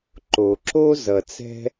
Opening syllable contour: low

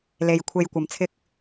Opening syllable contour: low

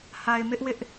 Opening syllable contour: low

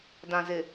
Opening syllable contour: low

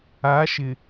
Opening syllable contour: rising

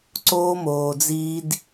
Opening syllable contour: high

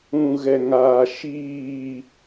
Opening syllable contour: low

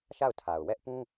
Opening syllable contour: falling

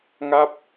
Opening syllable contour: falling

